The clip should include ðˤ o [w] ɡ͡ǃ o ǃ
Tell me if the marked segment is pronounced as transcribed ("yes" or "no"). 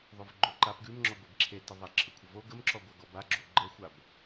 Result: no